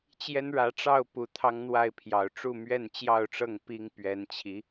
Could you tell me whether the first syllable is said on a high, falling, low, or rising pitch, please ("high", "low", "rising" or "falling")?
high